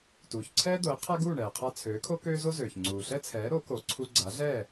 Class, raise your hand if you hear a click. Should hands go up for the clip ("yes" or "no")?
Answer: yes